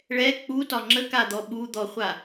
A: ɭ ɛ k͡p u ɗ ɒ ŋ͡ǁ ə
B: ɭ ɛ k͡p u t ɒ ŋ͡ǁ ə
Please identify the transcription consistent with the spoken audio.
B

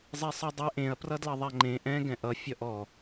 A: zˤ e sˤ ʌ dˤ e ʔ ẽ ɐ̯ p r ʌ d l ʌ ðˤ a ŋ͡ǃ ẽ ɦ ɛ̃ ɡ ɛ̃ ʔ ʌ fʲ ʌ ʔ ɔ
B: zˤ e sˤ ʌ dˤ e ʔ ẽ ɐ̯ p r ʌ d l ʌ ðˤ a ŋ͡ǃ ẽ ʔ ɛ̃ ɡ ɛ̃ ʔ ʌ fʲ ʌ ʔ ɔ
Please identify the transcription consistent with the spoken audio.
B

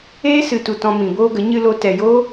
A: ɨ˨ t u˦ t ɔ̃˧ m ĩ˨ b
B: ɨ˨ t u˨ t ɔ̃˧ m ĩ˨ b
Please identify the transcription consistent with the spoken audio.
B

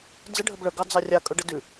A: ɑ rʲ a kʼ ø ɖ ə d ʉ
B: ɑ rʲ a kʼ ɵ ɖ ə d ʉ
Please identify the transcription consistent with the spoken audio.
B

